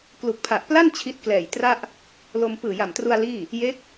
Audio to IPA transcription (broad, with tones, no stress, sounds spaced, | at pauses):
k l u˨˩ k̚ pʰ a˨˩ ʔ p l a˥˩ n t͡ɕʰ i˦˥ t̚ k l ɛː˨˩ j t r a˥˩ ʔ | l o˧ m p ɯː˨˩ j a˨˩ m t r u˧ a̯ l iː˥˩ | j e˦˥ k̚